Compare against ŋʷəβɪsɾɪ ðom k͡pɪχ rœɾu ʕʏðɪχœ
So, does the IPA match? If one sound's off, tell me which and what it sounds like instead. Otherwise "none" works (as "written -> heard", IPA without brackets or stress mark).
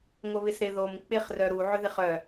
none